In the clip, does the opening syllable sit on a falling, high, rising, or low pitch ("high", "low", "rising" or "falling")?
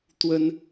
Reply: high